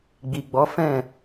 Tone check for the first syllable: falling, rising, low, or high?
low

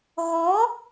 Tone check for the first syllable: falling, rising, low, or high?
rising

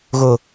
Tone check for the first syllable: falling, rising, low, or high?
low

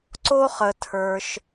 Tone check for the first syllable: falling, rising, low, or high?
high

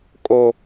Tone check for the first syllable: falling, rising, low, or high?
high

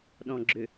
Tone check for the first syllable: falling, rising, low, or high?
low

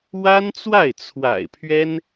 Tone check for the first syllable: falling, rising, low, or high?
high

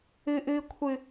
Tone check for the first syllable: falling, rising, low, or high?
high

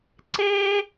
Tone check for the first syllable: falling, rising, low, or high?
high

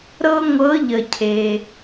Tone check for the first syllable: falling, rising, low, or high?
high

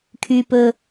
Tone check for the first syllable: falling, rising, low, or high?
low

